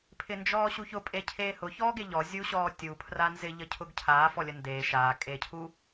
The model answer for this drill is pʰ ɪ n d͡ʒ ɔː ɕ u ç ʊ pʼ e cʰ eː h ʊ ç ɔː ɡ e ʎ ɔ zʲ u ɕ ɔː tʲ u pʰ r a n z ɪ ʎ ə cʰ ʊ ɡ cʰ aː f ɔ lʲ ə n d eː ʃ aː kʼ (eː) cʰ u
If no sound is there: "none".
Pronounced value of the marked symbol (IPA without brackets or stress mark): eː